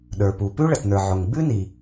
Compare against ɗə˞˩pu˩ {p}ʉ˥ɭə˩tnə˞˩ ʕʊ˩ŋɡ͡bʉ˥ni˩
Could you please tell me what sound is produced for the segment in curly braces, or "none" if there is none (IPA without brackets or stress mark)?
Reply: p